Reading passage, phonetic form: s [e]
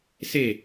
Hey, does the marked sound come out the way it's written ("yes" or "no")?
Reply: yes